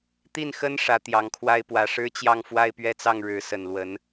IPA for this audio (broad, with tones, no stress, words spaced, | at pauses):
t̪i˥˩nxə˥n ʂä˧˥ t̪jɑ˧˥ŋkʰwa˥ɪ̯pwä˧˥ ʂɻ̩˥t͡ɕjɑ˥˧ŋ fwa˥˧ɪ̯pɥɛ˥˧t͡sɑ˥˩ŋ ɻɻ̩˧˥ sə˨˩nlwə˧˥n